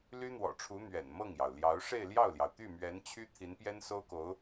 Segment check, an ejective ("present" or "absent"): absent